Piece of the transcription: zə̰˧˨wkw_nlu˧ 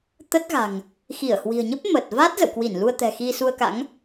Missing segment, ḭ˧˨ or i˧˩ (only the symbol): i˧˩